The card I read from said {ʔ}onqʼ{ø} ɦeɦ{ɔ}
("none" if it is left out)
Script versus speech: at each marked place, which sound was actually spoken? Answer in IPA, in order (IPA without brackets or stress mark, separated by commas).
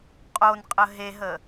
qʼ, ə, ə